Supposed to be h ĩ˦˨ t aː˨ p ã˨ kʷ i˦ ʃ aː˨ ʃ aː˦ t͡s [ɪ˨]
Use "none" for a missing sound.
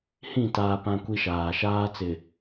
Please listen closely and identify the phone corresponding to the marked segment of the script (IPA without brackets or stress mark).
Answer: ɪ˨